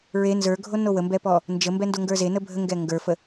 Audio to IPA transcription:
ɹ e n z ə˞ ɡʱ o n o w ə m b ɛ p ɔ | n d͡ʒ ə m b ɛ n d o ŋ ɡ ə˞ z e n ə bʱ ə ŋ ɡ ɛ ŋ ɡ ə˞ f ə

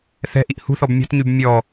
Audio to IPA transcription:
θ ɛ̤ ʔ i ʔ h ṳ θ ɔ b mʲ ɔ̤ t ɲ y b mʲ ɔ

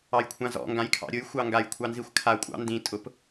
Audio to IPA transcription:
ɑ j kʷʰ ã z ɔ̰ ŋ ɡ ã j kʰ ɑ̰ ɾʲ ʊ j xʷ ɑ ŋ ɡ a j kʷʰ ɑ n z i xʷ kʰ a kʷʼ ɑ̰ n d ĩ tʼ ʊ p

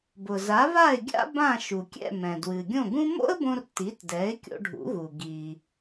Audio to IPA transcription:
b ʊ˩ z a˩˥ β a˥˩ ɪ̯ ɡʲ a̰˥ b ã˥˩ ʃ u˩ kʲ ɛ̰˥˩ m ɛ̃˩ d w ɨ˩ ɡʲ õ˥˩ ɡ ũ˥ m o̰˥ ə̯ b õ˧ r t i˩˥ t d ɛ˩˥ ɪ̯ kʲ o̰˧ ɖʱ ṵ˩˥ ɣ u˩ ɡ i˩

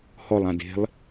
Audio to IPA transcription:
h ɔ lˠ ã d e̤ lˠ

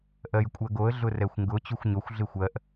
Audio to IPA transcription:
ʔ ɜ j kʷʼ ɜ ɡ o ə̯ ɮ ʊ r ɛ xʷ ŋ ɡ ʊ t͡ɕ u xʷ ɲ o xʷ ɮ ɪ xʷ ɜ ʔ

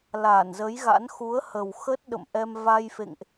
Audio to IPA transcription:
l a˧˩ n z ə˨˦ j ɣ a̰˧˥ n x u˨˦ ə̯ h ə˨˩ w x ə˦˥ t̚ ɗ ə̰˧˨ m ʔ ɛ˧ m v a˧ j f ḛ˧˨ ŋ ʔ

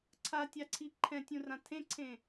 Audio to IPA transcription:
ǀʰ a tʲ a ǀʰ i ǃʰ ɛ̃ tʲ ũ r ã tʰ ẽ ǀʰ ẽ

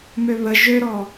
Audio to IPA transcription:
m ø β ə ʒ ø ɾ ɔ

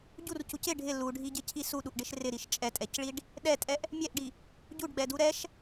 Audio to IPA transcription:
ɟ u r c u c ɪ ɖʱ ɪ l u ɖʱ i ɟ ɪ cʰ i s u ɗ u ʔ ɖ ɪ ʃ r ɪ ɾ i ʃ t͡ʃʼ ɛ tʼ ɛ c ɭ i ɖ | ɗ ɛ tʼ ɛ ʔ | mʲ ɛ ʔ ɖ i | ɟ u ɖ ɡ͡b ɛ d u ɾ ɛ ʃ

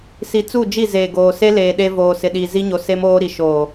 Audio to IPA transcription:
s i˨ t͡s u˦˨ d͡ʒ i˦˨ z eː˨ ɡ oː˨ s e˦ l eː˨ ɗ e˦ v oː˨ s ɪ˨ ɗ i˨ z i˦ ɲ o˨ s e˦ m oː˦ ɾ i˨ ʃ oː˨

